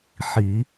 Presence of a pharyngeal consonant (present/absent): present